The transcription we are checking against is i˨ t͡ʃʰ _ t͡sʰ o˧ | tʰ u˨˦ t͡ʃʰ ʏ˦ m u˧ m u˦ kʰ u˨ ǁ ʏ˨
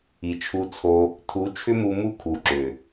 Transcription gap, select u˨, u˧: u˧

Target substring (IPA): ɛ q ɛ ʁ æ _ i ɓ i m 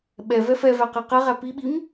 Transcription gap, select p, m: p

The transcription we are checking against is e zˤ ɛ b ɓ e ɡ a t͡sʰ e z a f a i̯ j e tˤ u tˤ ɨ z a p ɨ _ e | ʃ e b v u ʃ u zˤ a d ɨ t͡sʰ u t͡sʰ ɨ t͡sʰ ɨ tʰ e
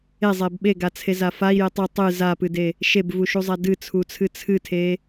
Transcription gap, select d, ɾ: d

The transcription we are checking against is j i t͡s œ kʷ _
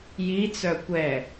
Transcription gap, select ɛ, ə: ɛ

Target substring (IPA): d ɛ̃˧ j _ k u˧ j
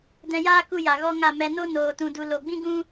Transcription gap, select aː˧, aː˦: aː˦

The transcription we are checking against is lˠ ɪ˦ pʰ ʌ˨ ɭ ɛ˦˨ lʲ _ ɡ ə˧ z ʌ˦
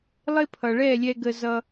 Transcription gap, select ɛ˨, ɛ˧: ɛ˧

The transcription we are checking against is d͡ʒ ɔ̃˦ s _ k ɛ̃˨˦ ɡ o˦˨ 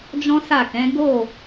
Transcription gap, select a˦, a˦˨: a˦˨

